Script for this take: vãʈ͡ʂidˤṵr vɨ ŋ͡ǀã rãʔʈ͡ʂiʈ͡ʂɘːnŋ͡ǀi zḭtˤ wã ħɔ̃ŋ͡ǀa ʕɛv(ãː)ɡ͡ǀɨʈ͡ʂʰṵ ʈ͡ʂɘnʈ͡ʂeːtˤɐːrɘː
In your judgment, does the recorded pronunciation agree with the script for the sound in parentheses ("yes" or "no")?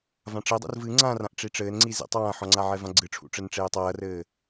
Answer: no